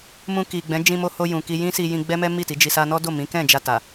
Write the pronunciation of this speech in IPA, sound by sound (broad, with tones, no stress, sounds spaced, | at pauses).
m ũ˧ k i˨ ɡ͡b ɛ̃˨˦ d͡ʒ ĩ˧ m o˧ h o˧ j ũ˨ k i˧ j ĩ˦ s i˧ j ĩ˧ ɡ͡b ɛ˦ m ɛ˦ m i˦˨ t i˨˦ d͡ʒ i˧ s a˧ n ɔ˦ d o˦˨ m ĩ˨˦ k ɛ̃˦˨ d͡ʒ a˧ t a˨